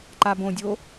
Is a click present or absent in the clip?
present